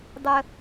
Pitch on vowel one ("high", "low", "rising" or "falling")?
high